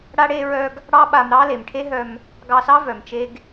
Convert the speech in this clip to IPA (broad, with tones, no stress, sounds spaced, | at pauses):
ɽ a˧ ɽ e˧ ɹ œ˧ ɡ | ɽ ɑ˦ ɓ a˧ m ɾ ɑ˦ l e˨ m ʈʰ e˦ ɦ œ˧ m | ɡ ɑ˧ s ɑ˦ v œ˨ m t͡ʃ e˦ ɡ